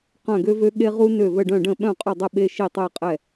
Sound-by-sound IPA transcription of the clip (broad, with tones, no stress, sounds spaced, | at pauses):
q œ̃˧˩ ɡ ø˧ v ø˧ ɠ e˧ ʁ u˧ n ø˧˩ v ə˧˩ ɖ œ̃˧˩ ɖ ə̃˧˩ ɓ œ̃˧˩ qʼ ʊ˧˩ dˤ ə˧˩ ɓ e˧ ʃ i˧˩ tˤ ɛ˧˩ qʼ ɛ˧˩